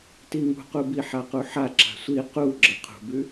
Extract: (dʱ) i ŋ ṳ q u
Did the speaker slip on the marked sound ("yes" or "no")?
yes